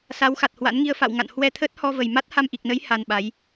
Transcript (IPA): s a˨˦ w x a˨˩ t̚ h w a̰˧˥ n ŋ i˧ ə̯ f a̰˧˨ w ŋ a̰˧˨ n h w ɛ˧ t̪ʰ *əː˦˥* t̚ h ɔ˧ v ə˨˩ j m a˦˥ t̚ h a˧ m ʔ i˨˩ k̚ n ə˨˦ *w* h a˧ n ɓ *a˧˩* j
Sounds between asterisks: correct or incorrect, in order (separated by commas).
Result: correct, incorrect, incorrect